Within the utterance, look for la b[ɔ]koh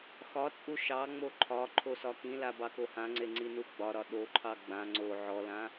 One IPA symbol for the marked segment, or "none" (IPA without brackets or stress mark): ɑ